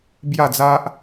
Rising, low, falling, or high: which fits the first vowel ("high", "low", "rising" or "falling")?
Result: falling